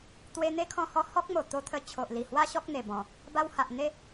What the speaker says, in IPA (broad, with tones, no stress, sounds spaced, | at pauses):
t̪ w e˧ n̪ e˦ kʰ ɔ̃˧ h ɔ˧ h ɔ˦ k̚ m o˨˩ t̪ o˧ t̪ʰ ə˧ t͡ɕʰ o˨ ʔ l i˨˩ h w a˦ ɕ ɔ˦ k̚ n̪ e˨˩ b ɔ̃˨˩ | b a˧ w h a˨ ʔ n̪ e˦